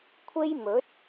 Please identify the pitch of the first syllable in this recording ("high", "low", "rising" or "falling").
high